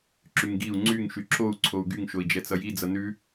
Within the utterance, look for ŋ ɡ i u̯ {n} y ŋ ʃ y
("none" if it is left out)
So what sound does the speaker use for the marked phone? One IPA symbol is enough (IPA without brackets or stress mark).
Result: ŋ͡ǀ